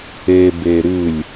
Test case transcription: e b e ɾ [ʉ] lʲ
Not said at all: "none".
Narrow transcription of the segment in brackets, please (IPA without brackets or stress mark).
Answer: ʉ